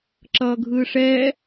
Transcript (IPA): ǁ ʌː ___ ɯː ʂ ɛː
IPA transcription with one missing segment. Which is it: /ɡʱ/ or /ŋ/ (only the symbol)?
ɡʱ